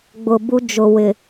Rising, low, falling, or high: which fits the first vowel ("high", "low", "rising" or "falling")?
low